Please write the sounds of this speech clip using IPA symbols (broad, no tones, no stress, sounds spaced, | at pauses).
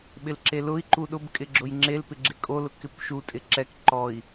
ɓ ɪ l ǁ e l ʊ i̯ ǃ u ɗ ʊ b kʼ ɪ ɡ͡ǁ ʊ j ŋ͡ǁ e l p ɪ ɡ͡ǁ ɪ kʼ o l ʊ k ɪ p ʃ u tʼ ɪ ǁ ɛ k ǃ ɔ i̯